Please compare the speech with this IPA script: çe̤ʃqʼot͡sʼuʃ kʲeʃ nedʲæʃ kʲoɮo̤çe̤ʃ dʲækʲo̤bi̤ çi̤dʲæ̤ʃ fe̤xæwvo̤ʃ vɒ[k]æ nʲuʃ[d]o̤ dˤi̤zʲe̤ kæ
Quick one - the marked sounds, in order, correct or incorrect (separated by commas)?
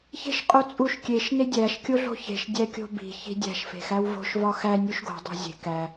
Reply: incorrect, incorrect